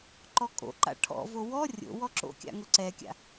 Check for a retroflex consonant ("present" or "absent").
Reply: present